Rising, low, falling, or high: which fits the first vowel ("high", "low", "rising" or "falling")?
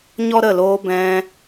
high